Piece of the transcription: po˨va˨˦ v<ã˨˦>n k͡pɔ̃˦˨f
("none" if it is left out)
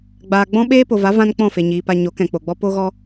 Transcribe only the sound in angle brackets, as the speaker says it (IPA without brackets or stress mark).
ã˦